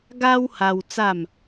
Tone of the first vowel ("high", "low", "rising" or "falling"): high